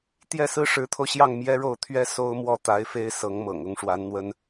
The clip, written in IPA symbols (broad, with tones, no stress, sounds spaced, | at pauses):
t̪ j ɛ˥˩ s ɹ̩˥ ʂ ɻ̩˧˥ t̪ʰ o˧ ʊ̯ ɕ j ɑ˥˩ ŋ m j ɛ˥ ɻ o˥˩ ʊ̯ t̪ʰ ɥ ɛ˥ s o˥ ʊ̯ m w ɔ˥˩ t̪ a˧˥ ɪ̯ f e˥ ɪ̯ s ɤ˧˥ ŋ m ɤ̰˨˩ ŋ ʊ˧˥ ŋ ʂ w a˧˥ n n̪ w ə˥ n